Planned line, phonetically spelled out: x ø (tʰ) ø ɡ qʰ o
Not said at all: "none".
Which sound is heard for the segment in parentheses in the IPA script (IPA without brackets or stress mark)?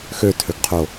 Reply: tʰ